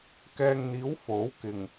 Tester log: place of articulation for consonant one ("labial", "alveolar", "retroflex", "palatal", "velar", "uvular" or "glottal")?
velar